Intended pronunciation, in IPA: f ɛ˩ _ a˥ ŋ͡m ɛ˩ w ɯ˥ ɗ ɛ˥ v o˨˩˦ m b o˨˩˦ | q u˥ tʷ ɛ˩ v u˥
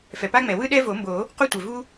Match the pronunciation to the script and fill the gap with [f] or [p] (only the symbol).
p